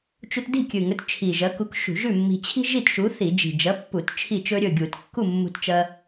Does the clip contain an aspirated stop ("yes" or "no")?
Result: yes